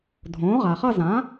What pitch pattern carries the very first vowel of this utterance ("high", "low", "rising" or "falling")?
rising